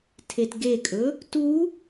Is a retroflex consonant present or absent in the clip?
absent